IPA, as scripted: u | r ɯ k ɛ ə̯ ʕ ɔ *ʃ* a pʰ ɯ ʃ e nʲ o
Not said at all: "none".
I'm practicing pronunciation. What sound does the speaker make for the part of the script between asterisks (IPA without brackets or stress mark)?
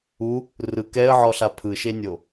ɬ